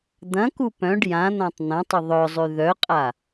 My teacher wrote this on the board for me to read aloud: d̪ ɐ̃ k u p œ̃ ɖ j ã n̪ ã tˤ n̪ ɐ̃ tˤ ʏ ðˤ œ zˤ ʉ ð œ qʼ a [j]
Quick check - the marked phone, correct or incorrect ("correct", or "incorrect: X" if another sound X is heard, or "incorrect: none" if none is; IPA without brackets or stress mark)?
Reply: incorrect: none